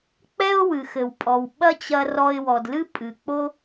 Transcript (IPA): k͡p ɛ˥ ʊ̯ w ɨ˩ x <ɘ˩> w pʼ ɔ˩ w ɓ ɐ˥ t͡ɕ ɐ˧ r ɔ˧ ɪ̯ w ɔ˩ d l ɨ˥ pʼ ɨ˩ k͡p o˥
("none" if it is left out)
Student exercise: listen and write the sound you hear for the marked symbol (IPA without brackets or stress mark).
ɘ˩